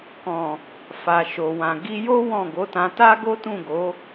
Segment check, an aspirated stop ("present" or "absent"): absent